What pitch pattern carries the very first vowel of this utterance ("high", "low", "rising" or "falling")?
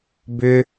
low